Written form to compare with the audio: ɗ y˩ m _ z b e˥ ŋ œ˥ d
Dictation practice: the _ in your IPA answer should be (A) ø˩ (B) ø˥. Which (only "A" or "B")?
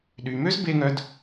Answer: B